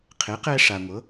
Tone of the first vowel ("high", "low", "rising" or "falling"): rising